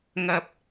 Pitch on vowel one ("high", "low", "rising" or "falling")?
low